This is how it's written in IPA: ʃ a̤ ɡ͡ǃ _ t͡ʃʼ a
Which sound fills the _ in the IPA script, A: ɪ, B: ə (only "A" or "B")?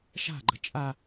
B